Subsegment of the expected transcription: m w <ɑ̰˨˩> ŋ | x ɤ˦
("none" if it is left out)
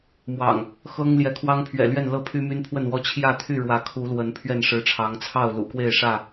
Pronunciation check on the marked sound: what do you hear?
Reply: ɑ̰˨˩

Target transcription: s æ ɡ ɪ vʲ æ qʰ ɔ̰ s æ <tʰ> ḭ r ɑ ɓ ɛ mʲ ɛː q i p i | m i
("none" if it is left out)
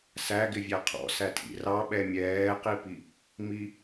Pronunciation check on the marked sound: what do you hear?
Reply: tʰ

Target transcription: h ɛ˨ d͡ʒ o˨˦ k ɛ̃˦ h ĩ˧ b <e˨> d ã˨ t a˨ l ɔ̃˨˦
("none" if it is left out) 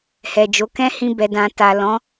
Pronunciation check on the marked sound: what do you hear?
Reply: ɛ˨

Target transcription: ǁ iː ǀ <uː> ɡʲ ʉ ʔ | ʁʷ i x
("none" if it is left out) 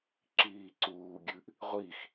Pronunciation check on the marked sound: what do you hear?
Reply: uː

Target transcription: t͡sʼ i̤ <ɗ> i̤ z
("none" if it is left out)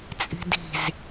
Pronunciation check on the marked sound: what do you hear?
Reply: d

